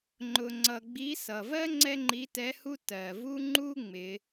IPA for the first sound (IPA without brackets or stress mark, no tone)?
ŋ͡ǃ